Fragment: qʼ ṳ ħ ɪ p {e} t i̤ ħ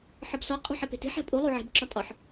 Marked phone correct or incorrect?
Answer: incorrect